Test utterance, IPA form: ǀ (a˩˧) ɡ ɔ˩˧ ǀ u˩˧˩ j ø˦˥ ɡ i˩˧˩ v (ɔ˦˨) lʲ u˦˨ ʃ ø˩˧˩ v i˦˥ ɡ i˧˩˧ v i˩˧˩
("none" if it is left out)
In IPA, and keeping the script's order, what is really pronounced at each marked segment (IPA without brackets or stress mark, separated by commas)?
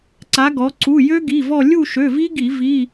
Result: a˩˧, ɔ˦˨